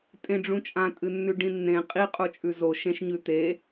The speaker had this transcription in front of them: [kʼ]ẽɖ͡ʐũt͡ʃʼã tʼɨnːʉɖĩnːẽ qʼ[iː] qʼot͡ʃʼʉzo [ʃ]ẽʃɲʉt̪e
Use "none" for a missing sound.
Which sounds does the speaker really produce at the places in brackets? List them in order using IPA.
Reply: tʼ, i, ʃ

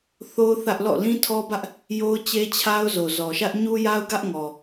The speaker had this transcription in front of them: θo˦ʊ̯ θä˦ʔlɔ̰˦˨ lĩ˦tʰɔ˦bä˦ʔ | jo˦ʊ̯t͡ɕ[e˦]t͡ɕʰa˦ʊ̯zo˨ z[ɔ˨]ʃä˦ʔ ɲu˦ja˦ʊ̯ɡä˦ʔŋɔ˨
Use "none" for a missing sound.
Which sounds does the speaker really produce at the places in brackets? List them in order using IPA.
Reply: e˦, ɔ˨

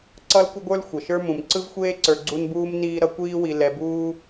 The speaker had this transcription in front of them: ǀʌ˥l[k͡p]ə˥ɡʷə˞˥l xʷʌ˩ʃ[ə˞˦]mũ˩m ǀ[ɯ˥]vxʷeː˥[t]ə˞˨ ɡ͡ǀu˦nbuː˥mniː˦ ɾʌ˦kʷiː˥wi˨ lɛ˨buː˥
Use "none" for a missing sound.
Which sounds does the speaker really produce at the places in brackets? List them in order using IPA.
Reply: kʷ, ə˞˦, ɯ˥, ǀ

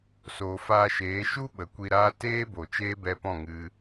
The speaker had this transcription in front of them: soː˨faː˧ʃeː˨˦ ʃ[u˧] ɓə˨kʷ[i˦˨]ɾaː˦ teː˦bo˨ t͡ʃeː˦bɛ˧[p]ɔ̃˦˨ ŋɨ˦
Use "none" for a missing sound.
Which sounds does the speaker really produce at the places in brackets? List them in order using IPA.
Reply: u˦, i˧, p

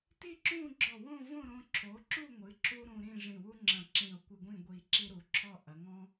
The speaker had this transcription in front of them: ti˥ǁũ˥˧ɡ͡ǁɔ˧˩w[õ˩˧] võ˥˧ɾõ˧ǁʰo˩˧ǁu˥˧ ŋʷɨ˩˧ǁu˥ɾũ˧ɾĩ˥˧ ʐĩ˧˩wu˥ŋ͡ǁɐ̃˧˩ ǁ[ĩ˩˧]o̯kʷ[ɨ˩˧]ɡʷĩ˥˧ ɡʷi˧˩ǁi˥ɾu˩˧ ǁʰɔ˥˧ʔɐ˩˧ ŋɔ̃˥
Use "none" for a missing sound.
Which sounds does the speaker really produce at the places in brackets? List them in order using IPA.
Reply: õ˥˧, ĩ˧˩, ɨ˧

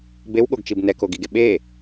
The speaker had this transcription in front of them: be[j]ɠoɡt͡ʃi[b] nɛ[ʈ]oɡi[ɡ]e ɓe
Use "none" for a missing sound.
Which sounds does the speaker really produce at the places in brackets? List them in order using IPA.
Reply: w, b, k, ɡ

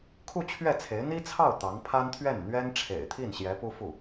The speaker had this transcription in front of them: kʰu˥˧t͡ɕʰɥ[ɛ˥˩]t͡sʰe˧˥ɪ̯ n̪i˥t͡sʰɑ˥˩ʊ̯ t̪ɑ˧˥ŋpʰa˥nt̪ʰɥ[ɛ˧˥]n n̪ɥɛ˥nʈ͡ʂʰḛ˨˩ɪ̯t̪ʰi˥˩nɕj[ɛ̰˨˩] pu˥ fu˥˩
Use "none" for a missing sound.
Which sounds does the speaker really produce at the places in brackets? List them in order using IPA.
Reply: ɛ˥˩, ɛ˥˩, ɛ˧˥

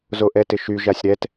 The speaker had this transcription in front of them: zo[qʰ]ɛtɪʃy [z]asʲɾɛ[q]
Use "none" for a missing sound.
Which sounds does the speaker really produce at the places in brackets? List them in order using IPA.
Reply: ʔ, ʒ, t

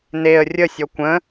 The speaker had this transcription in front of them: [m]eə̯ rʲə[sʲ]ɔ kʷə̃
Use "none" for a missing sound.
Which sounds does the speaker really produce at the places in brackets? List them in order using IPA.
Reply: n, sʲ

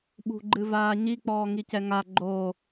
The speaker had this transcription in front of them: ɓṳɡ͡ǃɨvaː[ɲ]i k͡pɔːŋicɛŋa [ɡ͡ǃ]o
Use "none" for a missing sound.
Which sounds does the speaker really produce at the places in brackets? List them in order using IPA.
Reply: ɲ, ɡ͡ǃ

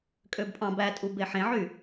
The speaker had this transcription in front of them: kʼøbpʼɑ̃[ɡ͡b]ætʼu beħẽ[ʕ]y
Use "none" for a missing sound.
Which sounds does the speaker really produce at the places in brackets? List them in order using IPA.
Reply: b, ʕ

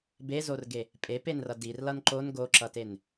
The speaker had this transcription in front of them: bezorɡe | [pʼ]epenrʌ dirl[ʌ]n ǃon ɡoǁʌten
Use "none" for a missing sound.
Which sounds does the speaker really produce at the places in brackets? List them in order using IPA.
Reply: pʼ, ʌ

